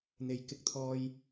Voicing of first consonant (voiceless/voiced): voiced